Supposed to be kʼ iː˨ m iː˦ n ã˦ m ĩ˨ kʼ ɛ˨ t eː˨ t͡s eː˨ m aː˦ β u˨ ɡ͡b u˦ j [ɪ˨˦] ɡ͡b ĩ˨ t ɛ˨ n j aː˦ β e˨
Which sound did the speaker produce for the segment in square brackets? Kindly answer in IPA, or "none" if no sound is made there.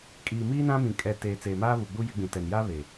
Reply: ɪ˨˦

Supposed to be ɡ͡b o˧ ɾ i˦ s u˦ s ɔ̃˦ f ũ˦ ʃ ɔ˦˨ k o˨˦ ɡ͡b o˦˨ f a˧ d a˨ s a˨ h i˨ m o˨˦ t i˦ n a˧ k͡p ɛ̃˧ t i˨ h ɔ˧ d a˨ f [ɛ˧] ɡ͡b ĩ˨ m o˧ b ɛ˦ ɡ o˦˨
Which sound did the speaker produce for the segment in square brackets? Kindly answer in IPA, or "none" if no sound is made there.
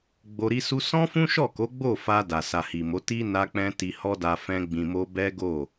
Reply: ɛ̃˧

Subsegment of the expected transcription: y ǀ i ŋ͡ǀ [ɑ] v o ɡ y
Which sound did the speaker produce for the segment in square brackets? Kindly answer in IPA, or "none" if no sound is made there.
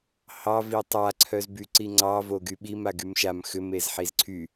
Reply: ɑ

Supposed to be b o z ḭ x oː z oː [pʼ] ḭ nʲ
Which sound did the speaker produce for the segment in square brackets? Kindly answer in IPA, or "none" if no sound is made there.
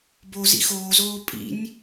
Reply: pʼ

